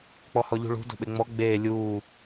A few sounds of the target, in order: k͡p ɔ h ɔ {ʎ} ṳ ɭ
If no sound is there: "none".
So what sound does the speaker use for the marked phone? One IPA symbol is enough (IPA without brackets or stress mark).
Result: ʎ